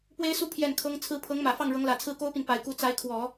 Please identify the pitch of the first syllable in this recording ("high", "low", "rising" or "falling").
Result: high